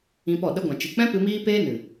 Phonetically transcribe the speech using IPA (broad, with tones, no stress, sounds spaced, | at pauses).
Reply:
ĩ˧ p ɔ˦˨ ɗ ə˦ ɡʷ ã˨ t͡ʃ ɨ˨ k͡p ɛ̃˦ p ɨ˧ m iː˦ p eː˦ n ɨ˨